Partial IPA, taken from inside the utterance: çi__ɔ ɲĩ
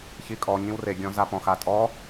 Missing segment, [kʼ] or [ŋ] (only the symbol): kʼ